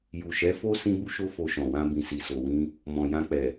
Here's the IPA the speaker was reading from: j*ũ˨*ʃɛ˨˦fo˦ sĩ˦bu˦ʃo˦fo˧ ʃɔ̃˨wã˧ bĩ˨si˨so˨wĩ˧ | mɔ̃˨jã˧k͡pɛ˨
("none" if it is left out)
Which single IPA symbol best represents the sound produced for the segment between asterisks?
u˨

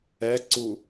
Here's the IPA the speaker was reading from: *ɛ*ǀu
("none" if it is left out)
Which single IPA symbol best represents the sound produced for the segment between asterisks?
ɛ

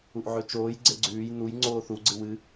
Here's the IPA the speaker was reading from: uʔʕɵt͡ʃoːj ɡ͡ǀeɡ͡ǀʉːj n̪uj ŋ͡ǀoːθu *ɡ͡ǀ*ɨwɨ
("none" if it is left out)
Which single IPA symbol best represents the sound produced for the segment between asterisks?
ɡ͡ǀ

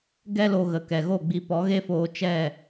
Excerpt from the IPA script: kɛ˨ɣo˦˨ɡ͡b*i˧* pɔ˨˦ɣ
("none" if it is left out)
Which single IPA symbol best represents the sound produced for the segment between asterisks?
i˧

